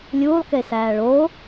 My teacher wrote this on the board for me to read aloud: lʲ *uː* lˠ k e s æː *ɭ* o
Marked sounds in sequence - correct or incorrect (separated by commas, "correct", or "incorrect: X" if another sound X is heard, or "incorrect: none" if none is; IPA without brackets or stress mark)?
correct, correct